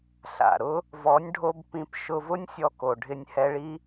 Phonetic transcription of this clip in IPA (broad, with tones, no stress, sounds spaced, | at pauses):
ɬ a̰˨ ɾ ʊ˦ | v ɔ˨˦ nʲ ɖʱ o˧ b p ĩ˧ p ʃ ʊ˧ v ʊ˦ nʲ sʲ ɔ˦ k o˨ ɖʱ ɪ˧ nʲ h ɛ˧ ɭ i˦